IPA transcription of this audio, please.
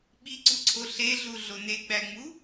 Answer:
ɓ i ǀ u ǀʰ o ɬ e ɮ u ɮ o n e ɡ͡b æ ŋ͡m u

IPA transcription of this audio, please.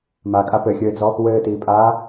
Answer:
m a kʼ a p ɘ xʲ ɘː d͡z ɔ | w ɘː t iː pʼ aː

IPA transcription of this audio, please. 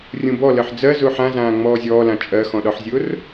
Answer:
rʲ ũ b ɔ l ɜ ħ d͡z ɜ z ʊː ħ ã z ãː ŋ͡m ɔː zʲ ɔː l ã t͡ʃʼ ɜ x ɔ̃ ɗ ɒ ħ zʲ ʊː r

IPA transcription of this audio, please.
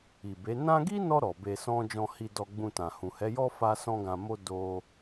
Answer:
i˨ b e˨˦ n ã˦ ɡ i˦ n ɔ˧ ɾ ɔ˨ b e˧ s ɔ̃˦ d͡ʒ ɔ̃˧ h i˧ d ɔ˧ ɡ͡b ũ˧ t ã˨ h ũ˨ h ɛ˨˦ j ɔ˦ f a˦ s ɔ̃˦ ɡ ã˧ m o˦ d o˧

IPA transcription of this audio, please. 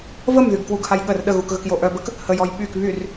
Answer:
v ə m ð y ɡ k w u ɡ h a j ɠ ə r ɗ ə ɣ u k ɣ ə k j o ʔ œ b ə k | h ə j ɔ j ɓ y k β y r

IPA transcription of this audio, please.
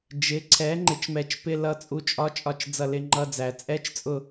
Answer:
d͡ʒ ɪ˩˥ ǀʰ ɛ˩˥ ŋ͡ǃ ɪ˩˥ t͡ʃ m ɛ˨˩˦ t͡ʃ p ɪ˧˥˧ l ʌ˦˨ t͡sʼ u˧˥ t͡ʃʼ ɒ˧˥˧ t͡ʃʼ ɒ˦˨ t͡ʃ d͡z ʌ˦˨ l ɪ˧˥˧ ŋ͡ǃ ʌ˧˥˧ d͡z æ˨˩˦ t͡sʼ ɛ˧˥˧ t͡ʃ t͡sʼ ʊ˦˨

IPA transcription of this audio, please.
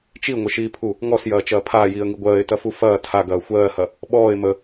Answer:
t͡ʃ i ŋʷ ə ʃ iː pʰ u | ŋ ɔ s j ɐː t͡ʃ ɐː pʰ aː j iː ə̯ ŋ i ɡʷ ɜː ɪ̯ t ɐ f u f ɐː tʰ a ɡ ɐː xʷ ɜː h ɐ | ɓ ɔː ɪ̯ m ə

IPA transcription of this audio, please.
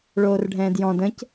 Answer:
ɭ oː r ɖʱ ɛ̃ː d j ɔ̃ d ə̃ c

